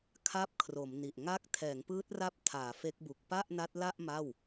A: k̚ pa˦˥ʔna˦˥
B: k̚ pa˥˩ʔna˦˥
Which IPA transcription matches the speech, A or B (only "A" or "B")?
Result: B